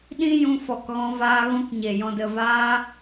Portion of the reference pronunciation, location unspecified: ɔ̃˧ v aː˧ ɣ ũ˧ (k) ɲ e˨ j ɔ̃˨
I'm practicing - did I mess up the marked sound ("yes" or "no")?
no